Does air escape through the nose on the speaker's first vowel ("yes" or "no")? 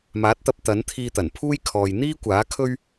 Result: no